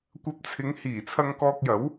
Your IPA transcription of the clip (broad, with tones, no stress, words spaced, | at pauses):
kʷɐ˧p̚t͡sʰɪ˨˧ŋ hiː˨˩t͡sʰɐ˧ŋkɔː˧k̚jɐ˨˥w